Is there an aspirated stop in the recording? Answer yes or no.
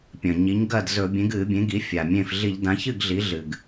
no